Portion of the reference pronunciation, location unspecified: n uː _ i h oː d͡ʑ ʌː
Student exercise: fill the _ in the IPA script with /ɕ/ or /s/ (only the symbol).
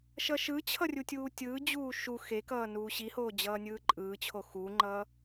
ɕ